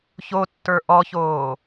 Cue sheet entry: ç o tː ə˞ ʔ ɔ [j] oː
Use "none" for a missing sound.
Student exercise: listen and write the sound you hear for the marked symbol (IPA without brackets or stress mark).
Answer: ç